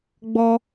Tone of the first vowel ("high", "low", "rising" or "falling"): high